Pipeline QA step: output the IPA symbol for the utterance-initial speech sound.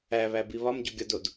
æ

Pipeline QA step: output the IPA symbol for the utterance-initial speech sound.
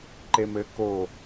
ǃ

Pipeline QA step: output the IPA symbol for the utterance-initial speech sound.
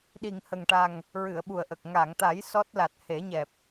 ɗ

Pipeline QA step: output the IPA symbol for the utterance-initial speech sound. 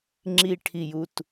ŋ͡ǁ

